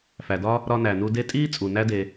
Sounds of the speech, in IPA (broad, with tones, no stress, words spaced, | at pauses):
fæ˩dɒ˦ | ɾɒ˦næ˩nu˦ de˦ tʼiː˥ t͡sʼu˩ næ˦de˩